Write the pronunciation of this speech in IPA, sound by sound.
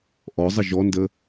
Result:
ʔ ɔ zˤ ə ʒ ɔ n d ə

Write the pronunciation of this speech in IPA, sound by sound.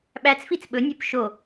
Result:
ɓ æ t͡s f i t͡s ɓ ɵ nʲ ɵ p ʃ o

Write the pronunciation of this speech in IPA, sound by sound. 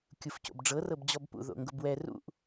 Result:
kʲ u f c o̰ b ɖ͡ʐ ɤ r ɤ b d͡ʑ ɔ b p ṵ ð o̰ ŋ ɡ ʊ b w ɛ r ṵ ʔ

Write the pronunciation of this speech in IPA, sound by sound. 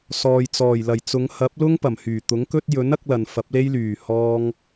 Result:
s ɔː˨ j t͡s ɔː˨˩ j l ɐ˨˩ j t͡s ʊ˨˧ ŋ h ɐ˨˥ p̚ l ʊ˥ ŋ p ɐ˨˩ m h yː˨˩ t̪ ʊ˨˥ ŋ k ɵ˥ t̚ j ɵ˨˥ n ɐ˥ k̚ l ɐ˨ n f ɐ˨˥ p̚ l e˥ j l yː˨˩ h ɔː˥ ŋ

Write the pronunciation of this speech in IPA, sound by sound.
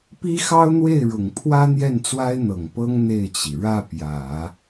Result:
p i˥ x ɑ˥ ʊ̯ n̪ w e˥˩ ɪ̯ ɻ ʊ˨˩ ŋ pʰ w ä˥ n̪ j ɛ˥˩ n t͡s w a˥ ɪ̯ n̪ ɤ˨˩ ŋ p ɤ˥ ŋ n̪ e˥˩ ɪ̯ t͡ɕ i˩ ɻ ä˥˩ p j ä˨˩˦

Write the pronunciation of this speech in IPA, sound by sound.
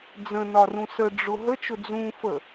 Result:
d͡z ə̃ n ɒ r ũ s ə ɖ͡ʐ ʊ ɦ ə t͡ʃ ʊ d͡z ũ f ə

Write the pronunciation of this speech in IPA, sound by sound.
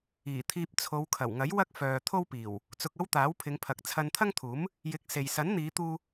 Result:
iː˨˩ t̪ʰ iː˧ p̚ t͡sʰ o˨˧ w kʰ ɐ˨˩ w ŋ ɐ˨˥ j w ɐ˥ k̚ f œː˨ t̪ʰ o˥ w p iː˨˩ w | t͡s ʊ˧ k̚ ɐ˥ w t̪ aː˨˥ w pʰ ɪ˨˧ ŋ pʰ ɐ˨ k̚ t͡sʰ ɐ˧ n t̪ʰ ɐ˥ ŋ t̪ʰ uː˨˥ m | j ɪ˨˥ k̚ s e˨ j s ɐ˨˥ n n̪ iː˨˧ t̪ uː˧

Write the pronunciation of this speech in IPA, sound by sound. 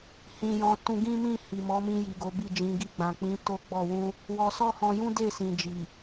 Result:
h ĩ˧ j ɔ̃˧ t ũ˧ ɡ ĩ˦ m ĩ˦˨ h i˨ m ɔ˨˦ m ĩ˧ j i˨ ɡ o˨˦ b i˦˨ d͡ʒ ĩ˨˦ ɡ i˧ ɡ͡b ã˨ k͡p ĩ˨˦ t o˦ ɡ͡b ɔ˦˨ w ũ˧ | w ɔ˧ s ɔ˦ h ɔ̃˧ j ũ˦ d e˦˨ s ĩ˨ d͡ʒ i˨

